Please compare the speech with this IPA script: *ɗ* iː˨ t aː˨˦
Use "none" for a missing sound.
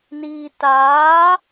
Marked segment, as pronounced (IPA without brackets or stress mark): n